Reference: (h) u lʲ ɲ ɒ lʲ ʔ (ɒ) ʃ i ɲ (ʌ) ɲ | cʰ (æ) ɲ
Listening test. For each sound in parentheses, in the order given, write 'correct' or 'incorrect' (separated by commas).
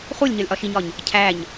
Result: incorrect, correct, incorrect, correct